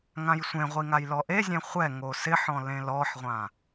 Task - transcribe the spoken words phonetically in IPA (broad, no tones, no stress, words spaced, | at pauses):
ŋãjsʷẽʁʷi ŋajlɔʔezʲẽ χʷɛŋo sɪħɔ̃ lẽlɔħʁʷã